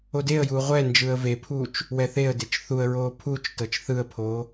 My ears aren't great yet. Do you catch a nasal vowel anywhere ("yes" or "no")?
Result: no